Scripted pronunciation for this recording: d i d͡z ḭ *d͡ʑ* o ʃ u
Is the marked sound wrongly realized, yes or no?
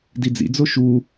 yes